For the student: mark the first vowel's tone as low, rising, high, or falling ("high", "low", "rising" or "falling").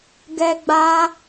high